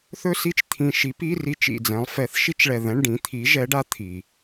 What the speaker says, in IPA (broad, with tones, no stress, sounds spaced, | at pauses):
θ ɵ˥ s i˥ t͡ʃ t̪ʰ ĩ˧˩ ʃ i˨˥ p i˧˥˧ r i˧˥˧ t͡ʃ ḭ˧˩ d͡z ɛ̃˨˥ lˠ f ɛ˨˥ θ ʃ i˥ t͡ʃ ɭ ɛ˧˩ ð ɛ̃˧˥˧ ɳ ɖ ĩ˨˥ t̪ʰ i˨˥ ʒ ɛ˨˥ ɖ a˨˥ t̪ʰ i˩